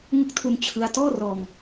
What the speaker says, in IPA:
ŋɯ˦˥k̚tʰu˧n t͡ɕʰɯ˥˩a̯ tɔː˥˩rɔː˧ŋ

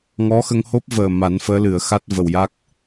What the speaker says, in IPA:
ŋɔ˧˥xə˧ŋho˦˥p̚vəː˨˩ ma˨˩˦nfəː˧˥lɨ˨˩˨ə̯ xa˦˥t̚və˨˩wja˦˥k̚

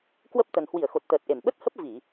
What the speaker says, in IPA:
kwə˦˥p̚t̪ə˨˩n hwi˧˩ə̯xo˨˩t̚t̪əː˨˩t̚ʔe˧˩m ɓə˦˥t̚hə˦˥p̚ vi˧˩˨

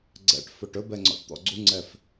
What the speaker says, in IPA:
ɡ͡ǀɛ̰ʈ fɵʈɵbɛ ŋ͡ǀɔ̰ʈt̪ɔ̰ɡ͡ǀuŋ͡ǀɛf

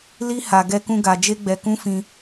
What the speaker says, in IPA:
li˦ ha˧ ɡɛ˦kũ˦ɡa˧ d͡ʒe˦ɡ͡bɛ˧kũ˦fĩ˧

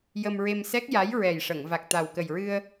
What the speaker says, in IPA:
jə˧mɹe˧msɛ˦˥k̚ ja˧˥jɹɛ˨˩jʂə˨˩˨ŋ va˨˩k̚t̪a˨˩wkə˨˩jɹɨ˧ə̯

